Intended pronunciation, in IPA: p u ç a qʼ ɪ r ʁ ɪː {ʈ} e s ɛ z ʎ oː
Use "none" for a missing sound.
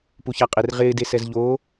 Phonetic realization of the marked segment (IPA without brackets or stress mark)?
d